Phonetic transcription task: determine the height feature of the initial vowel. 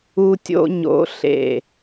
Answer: high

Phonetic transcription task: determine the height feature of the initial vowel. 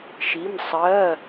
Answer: high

